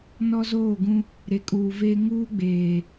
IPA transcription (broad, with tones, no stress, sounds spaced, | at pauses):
n ɔ˦ z oː˦˨ ɡ ũ˦ | ɾ e˨ kʼ uː˨ v eː˦ ŋ uː˦ ɡ͡b eː˨